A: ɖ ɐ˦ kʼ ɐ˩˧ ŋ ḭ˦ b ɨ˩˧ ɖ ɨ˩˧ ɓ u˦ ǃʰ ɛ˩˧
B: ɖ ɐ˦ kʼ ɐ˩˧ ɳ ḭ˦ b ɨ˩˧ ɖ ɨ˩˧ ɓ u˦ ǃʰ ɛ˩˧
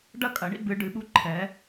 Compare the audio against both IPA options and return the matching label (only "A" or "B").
B